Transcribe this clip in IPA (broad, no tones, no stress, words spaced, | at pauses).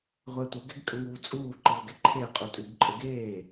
ʁʷɛtʷɘ ɡɛɡkʼəŋuːt͡sʼuː ǃɯə̯ɡɛǃʰeə̯ qʼutʼʉɡǃʼəɡeː